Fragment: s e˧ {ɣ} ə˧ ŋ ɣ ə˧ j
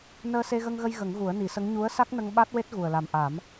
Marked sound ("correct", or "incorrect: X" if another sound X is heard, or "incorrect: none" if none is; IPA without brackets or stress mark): correct